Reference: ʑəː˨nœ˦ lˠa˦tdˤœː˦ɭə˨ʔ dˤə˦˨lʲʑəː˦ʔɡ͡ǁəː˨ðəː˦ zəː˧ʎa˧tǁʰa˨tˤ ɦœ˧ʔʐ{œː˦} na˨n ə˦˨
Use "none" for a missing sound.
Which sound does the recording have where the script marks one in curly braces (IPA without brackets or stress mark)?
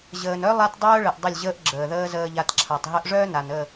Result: œː˦